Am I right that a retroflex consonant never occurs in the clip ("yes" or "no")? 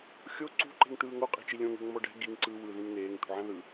no